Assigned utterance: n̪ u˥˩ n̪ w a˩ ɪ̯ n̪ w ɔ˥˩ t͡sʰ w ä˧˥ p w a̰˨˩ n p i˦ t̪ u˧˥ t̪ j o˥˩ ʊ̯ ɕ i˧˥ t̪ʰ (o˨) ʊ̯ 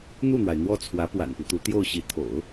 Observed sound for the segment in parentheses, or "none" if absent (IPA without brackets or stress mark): o̰˨˩˦